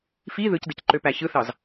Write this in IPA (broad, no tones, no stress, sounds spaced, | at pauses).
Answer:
f i ð ɯ c d ɯ c ǃ ø p æ ç ɯ θ ɑ z